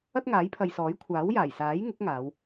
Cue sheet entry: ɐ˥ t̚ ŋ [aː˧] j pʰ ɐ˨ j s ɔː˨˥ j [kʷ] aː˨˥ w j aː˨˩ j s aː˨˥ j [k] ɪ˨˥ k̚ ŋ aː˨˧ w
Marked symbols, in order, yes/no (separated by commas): no, no, no